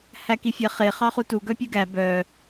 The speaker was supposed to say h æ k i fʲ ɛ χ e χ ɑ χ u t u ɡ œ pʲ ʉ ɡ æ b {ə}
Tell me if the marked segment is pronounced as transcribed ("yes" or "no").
no